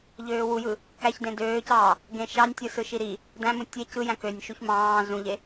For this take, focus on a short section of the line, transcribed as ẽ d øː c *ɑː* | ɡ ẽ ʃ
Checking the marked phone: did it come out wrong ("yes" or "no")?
no